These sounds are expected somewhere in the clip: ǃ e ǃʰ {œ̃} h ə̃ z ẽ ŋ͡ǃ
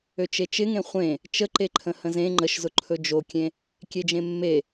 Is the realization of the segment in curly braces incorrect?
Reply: yes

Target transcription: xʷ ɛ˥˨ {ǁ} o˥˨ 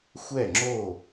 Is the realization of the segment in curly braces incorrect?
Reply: yes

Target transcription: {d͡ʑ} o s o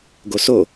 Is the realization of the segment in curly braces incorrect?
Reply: yes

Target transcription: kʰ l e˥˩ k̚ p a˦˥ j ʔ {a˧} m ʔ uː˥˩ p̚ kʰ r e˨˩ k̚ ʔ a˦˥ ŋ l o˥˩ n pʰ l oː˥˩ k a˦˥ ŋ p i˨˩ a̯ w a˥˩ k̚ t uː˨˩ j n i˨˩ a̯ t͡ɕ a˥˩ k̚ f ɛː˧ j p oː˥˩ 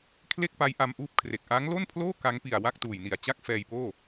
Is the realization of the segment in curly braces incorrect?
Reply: no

